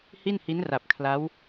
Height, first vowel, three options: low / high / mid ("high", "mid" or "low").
high